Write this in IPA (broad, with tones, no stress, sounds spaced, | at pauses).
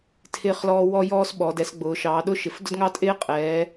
tʰ ɪː˦ χ l ɔː˦ w ɔ˦ j ɔː˦ s ɓ ɔ˩˧ d ɛ˩˧ s ɡ͡b ʊː˩˧ ʃ ɑː˩˧ ɗ ʊ˦ ʃ ɪ˩˧ f d ʊ˦ d ŋ ɑ˦ tʼ ɪː˦ qʼ ɛː˩˧